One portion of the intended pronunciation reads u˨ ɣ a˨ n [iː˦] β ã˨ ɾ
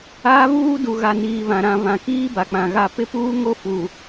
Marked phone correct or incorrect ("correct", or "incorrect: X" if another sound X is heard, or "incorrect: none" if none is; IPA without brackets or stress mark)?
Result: incorrect: iː˨